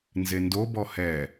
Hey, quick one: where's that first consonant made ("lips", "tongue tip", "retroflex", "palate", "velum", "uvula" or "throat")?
tongue tip